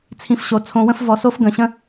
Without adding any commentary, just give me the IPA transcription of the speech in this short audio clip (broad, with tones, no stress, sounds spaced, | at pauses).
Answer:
t͡sʰ ĩ˨˦ f ɕ o˨ t͡sʰ õ˧ w ə̃˦ f v ɔ˧ s o˦ f ɡ ə̃˧ ɕ ə̃˦